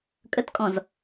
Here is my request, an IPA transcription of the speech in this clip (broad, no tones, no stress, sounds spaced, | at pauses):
kʼ ə t kʼ ɔ̃ z